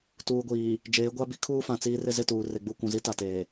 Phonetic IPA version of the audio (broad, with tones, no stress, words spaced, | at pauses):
tuː˨ɡʷiː˨ | d͡ʒeː˨˦ɡʷa˦bi˦ kʰuː˦fã˨ t͡siː˦rɪ˦ zɪ˦˨tuː˨ re˨ɡ͡bu˦˨kʷũ˨zi˦ ta˨teː˨